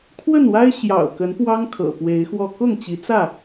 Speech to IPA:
kʰwə˥˨nwa˦ɪ̯ ɕjɑ̰˨˩ʊ̯kə˨˦npwɑ˦ŋ kʰɤ̰˨˩pwe˨˦ɪ̯xwɔ˥˨ kʊ˥˨ŋt͡ɕi˨˦t͡sä˥˨

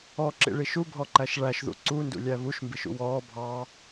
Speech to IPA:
ɔǁḭɭi ʃubʱɔǃæʃ ɭæʃðṵ ǀundṵlʲæ βuʃmbiʃṵ wɔː bʱɑ

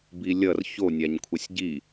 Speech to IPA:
bilʲʌr ço nʲaɲkʷʰʌsʲɟi

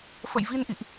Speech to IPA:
fə̰˧˨jvi˧nʔḭ˧˨ʔ

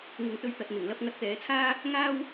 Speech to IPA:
ŋɪ˨ŋt̪ɵ˧ɥt̪ɐ˨t̚ n̪ɪ˨˩ŋlɐ˧p̚ ŋɐ˧t̚t̪ɛː˨˧t͡sʰaː˥ | ŋaː˥w

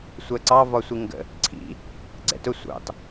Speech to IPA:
sʷɜǀɑ vɒsʷiŋɡə̰ | ǀʰḭ | ɡ͡ǀɛ̰tʊ sʷɑ̰t

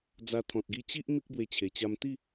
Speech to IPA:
d͡za˧ t̪ʰɔ̃˨t̚ɡi˧ t͡ɕi˦ʔ mi˦k̚bwe˧t͡ɕʰe˨˩t͡ɕa˧m t̪i˥˧

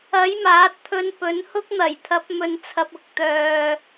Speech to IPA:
ɐ˨˥j maː˨˥t̚t̪ʰɵ˧npɵ˨˥n hʊ˥k̚n̪ɐ˨˩jt̪ʰɐ˨˥p̚mɵ˨˧n t͡sʰɐ˨p̚ʊ˧k̚t̪œː˨

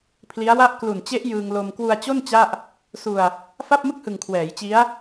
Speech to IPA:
pʰli˦˥a̯wa˥˩ʔ klu˨˩nt͡ɕe˦˥ʔ jɯː˧ŋ lo˧m kwu˧a̯t͡ɕo˥˩n t͡ɕa˥˩ʔ | su˧a̯ | fa˥˩p̚mɯ˥˩k̚hɯ˨˩ŋ kʰwɛː˩˦j t͡ɕi˦˥a̯

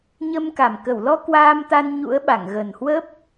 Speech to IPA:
ɲə˧mka˨˩m kə˧˩wlɔ˧ kwaː˧mt̪a˧nɲṵ˧˥ə̯ɓa˧˩ŋ ɣə˨˩nhwə˦˥p̚

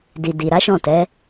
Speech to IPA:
di˨di˨ɾa˨˦ʃɔ̃˦˨ tɛ˨˦

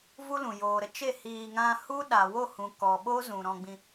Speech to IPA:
vu˦lũ˨ joː˨ɾə˦t͡ʃe˦˨ hiː˧ ŋã˧hu˦ɗa˨wo˦˨ hũ˨kɔ˨ ɓo˦ zũ˨ɾɔ̃˧ɡ͡bĩ˧

